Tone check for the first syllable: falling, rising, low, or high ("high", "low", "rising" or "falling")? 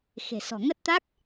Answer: low